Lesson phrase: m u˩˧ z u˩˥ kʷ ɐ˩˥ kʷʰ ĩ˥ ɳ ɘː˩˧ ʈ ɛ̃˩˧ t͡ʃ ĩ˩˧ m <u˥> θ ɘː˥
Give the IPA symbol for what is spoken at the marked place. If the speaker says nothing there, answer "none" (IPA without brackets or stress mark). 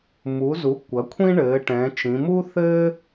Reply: u˥